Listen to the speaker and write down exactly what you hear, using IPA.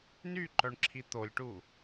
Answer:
n y ǃ œ ɳ ǁʰ i t̪ o lʲ ʈ u

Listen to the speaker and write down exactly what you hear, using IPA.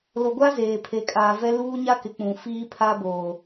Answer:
l o˨ ɡʷ a˦ z eː˨ pʰ e˨ kʼ aː˨ v ɛ˦ l uː˦ ɲ a˦ k ɪ˨ k͡p ũ˨ f iː˦ pʰ a˦ b oː˨

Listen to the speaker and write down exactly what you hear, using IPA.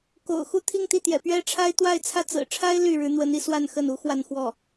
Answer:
k o̰˨˩ ʊ̯ x u˥˧ t̪ʰ i˥˧ ŋ t̪ i˥˩ t̪ j ɛ̰˨˩ p ɥ ɛ˥ ʈ͡ʂʰ a˥ ɪ̯ t̪ w a˥˧ ɪ̯ t͡sʰ ä˥˩ t͡s ɹ̩˨˩ ʈ͡ʂʰ a˥ ɪ̯ l y˥˩ ɻ ɻ̩˧˥ n̪ w ə˧˥ n i˧ s w a˥˧ n x ə˥˩ n u˥ x w a˥˧ n x w ɔ˥˩

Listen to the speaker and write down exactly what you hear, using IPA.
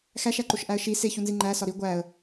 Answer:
x æ ʃ æ ǃ o ʃ ʔ æ ə̯ ʃ i s e ç u n z i ŋ͡ǃ æ s ɒ ɾ i ɡʷ æ ə̯

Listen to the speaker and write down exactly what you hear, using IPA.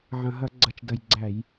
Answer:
ʕ ɐ̃˨˩ ɦ ɐ˧˩˧ ɡ͡ǀ ɐ˨˩ t͡ʃ d ɐ˨˩ j ɡ͡ǀ æ˧˩˧ j

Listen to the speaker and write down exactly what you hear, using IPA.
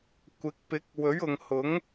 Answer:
kʷ ɪ˨˥ k̚ p ɪ˨˥ k̚ w ɵ˨˥ ɥ ʊ˨ ŋ h ʊ˨˥ ŋ

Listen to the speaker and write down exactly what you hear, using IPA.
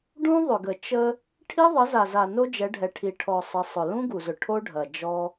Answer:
ɖ ũ˦ ðˤ ʏ˨ ɡ ə˨ t͡ʃ ə˦ | ʈʰ i˦ ðˤ ə˨˦ z a˨ z a˨ n o˦ d͡ʒ ɛ˨˦ ɖʱ ɛ˨ ʈʰ i˨ ʈʰ ɔ˨ sˤ ə˨˦ sˤ ʊ˨ l ũ˦ ɡ u˨ z ʊ˨ ʈʰ o˦ ɖʱ ɐ˨ d͡ʒ ɔ˦

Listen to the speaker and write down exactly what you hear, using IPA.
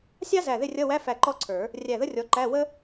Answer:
sʲ ɑ˥ z æ˧˩ ð ɪ˥˨ rʲ ʌ˧˥˧ w æ˧˥˧ f æ˧˩ ǃ ɔ˥ ǀʰ ə˞˨˩˦ | rʲ æ˧˩ ð ə˥ rʲ ɔ˨˦ ǃ æ˧˥˧ w ə˥

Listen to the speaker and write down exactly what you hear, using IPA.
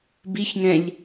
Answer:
b i ç ŋ ɛ̃ ʎ

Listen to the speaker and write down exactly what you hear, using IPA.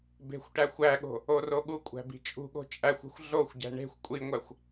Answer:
b e̤ xʷ ʈ æ xʷ æ ɠ o̤ | o r o ɠ u kʷʼ æ̤ b i̤ t͡ʃʼ ṳ ɠ o̤ t͡ʃʼ æ xʷ e̤ xʷ ɮ o xʷ ɟ æ̤ ɳ e̤ xʷ kʷʼ i ŋʷ æ xʷ

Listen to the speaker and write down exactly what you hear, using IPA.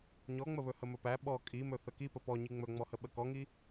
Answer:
ɲ ɔ ŋ͡m ə β ɵ h ə m ɵ p æ ɓ ɔ kʼ i m ɵ θ ə k i p ə p ɔ ɲ i ŋ͡m ɵ ŋ͡m ɔ h ə ɓ ə k ɔ ŋ i

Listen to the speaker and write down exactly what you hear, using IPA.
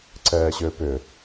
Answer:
ǀ ɛː ɕ ʏː p ʏ

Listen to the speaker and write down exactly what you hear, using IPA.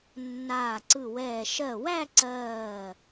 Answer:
nː aː˧˩ ǀ ɯ˧˩ w ɛː˧˩ ʃ ɜ˧˩ w æ˥˧ ǀ ɜː˧˩

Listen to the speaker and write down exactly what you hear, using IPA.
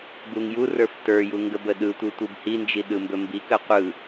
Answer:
b u ŋ j u r ə˞ f t ə˞ j u ŋ ɡ ə b ə ɗ ɯ tʷ ɯ tʷ ɯ b h i n d͡ʒ i ɗ ɯ m b ɵ m b i k ə qʷ ɯ

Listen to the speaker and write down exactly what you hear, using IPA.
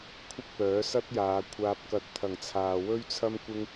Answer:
kʷʰ ɪ˥ k̚ p œː˨˥ s ɐ˥ t̚ j aː˨˧ kʷʰ aː˨ p̚ k ɐ˨ t̚ t̪ʰ ɐ˨˩ ŋ t͡sʰ aː˨ w ɵ˥ ɥ t͡sʰ ɐ˥ m kʷ ɪ˥ ŋ

